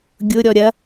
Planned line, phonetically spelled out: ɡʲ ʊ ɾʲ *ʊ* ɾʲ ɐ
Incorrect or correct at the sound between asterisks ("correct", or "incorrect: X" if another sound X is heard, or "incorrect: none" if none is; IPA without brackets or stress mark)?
incorrect: ɔ